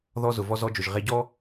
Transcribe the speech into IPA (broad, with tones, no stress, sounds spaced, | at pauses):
ð ɔ˧ z ʊ˩ v ɔ˧ z ɔ˧ d͡ʒ ʊ˩ ʒ ʁ e˧ ɟ ɔ˥